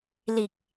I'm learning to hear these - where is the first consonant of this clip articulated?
tongue tip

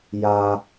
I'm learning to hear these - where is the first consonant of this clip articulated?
palate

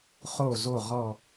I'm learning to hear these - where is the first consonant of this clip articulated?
uvula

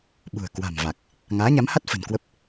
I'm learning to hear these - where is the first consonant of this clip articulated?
lips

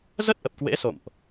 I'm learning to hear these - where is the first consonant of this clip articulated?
tongue tip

